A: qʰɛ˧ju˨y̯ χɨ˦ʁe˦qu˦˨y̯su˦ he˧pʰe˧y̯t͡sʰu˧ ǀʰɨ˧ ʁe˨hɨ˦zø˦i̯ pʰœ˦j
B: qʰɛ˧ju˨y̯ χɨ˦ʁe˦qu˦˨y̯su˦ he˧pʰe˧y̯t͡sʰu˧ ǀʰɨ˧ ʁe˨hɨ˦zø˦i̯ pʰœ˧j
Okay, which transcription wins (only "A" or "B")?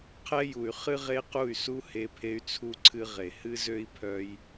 A